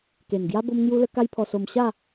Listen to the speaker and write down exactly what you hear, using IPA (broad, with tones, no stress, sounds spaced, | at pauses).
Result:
k e˨˩ n ɡ j a˦ b o˦ m ŋ j u˦ l ə˦ k a˦ j pʰ ɔ˧ s o˧ m ɕ a˥˧